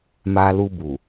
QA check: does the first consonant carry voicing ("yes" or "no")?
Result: yes